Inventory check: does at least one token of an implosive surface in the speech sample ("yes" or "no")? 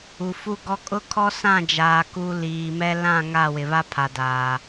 no